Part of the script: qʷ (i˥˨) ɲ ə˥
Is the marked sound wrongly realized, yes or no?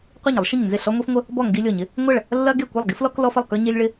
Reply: no